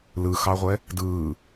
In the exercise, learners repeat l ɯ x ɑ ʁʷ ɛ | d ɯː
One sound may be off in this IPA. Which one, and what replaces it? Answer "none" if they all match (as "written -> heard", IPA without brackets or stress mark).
none